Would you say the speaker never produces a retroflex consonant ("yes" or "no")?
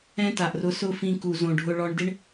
no